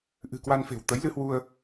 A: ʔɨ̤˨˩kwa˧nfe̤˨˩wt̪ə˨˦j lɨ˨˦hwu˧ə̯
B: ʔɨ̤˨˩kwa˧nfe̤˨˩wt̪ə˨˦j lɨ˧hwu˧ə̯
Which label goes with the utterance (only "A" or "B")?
B